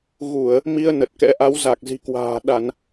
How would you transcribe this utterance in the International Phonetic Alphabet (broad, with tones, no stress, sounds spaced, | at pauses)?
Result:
ɣ u˧˩˨ ə̯ | m i˧ ə̯ n ə˨˩ t̚ k ɛ̰˧˥ ʔ a˨˦ w z a˨˩ k̚ z i̤˨˩ k w a̤ː˨˩ ɗ a˧˩˨ n